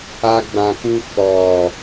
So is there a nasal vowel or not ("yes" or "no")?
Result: yes